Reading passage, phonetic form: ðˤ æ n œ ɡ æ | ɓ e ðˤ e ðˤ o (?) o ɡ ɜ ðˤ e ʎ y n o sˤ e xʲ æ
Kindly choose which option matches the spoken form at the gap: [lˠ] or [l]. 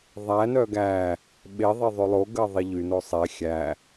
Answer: lˠ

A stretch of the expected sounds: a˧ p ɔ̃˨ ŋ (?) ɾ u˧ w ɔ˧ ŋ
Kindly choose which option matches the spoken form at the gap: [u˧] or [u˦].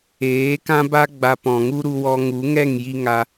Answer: u˦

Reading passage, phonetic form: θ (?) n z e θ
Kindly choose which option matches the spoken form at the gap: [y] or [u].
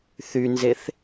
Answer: y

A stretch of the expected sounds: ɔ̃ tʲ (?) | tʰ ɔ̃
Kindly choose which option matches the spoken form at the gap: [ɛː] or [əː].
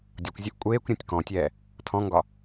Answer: ɛː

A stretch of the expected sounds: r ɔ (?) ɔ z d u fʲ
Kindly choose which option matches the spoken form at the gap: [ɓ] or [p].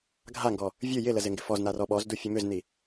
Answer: ɓ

